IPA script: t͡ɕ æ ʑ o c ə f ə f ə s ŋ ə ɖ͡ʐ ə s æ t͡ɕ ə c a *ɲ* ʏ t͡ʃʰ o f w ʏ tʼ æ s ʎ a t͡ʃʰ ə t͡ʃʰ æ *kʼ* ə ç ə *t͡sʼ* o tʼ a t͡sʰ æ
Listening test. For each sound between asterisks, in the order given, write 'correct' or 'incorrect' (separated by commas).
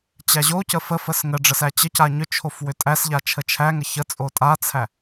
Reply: correct, incorrect, correct